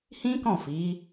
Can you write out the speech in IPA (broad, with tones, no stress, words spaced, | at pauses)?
hĩ˦ kɔ̃˦˨fi˨˦